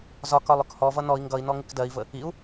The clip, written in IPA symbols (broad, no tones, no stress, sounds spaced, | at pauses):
z ɒ k ɒ lˠ ʊ k h ɔ v ʌ n ɔ i̯ ŋ ɡ ʌ i̯ n ɔ ŋ ɪ k d ɜ i̯ v ə | i u̯